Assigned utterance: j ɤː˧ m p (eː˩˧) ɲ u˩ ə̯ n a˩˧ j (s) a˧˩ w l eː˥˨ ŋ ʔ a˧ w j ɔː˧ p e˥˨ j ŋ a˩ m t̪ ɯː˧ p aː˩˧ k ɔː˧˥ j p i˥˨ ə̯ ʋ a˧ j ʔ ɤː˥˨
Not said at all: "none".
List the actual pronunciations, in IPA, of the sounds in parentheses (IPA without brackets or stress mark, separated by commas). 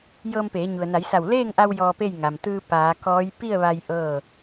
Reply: eː˩˧, s